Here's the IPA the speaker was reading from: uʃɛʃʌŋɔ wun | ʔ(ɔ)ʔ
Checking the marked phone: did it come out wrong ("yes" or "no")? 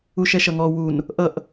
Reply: yes